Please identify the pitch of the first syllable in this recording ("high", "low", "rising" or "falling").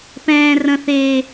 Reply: high